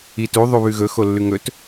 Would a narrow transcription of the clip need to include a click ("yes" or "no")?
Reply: no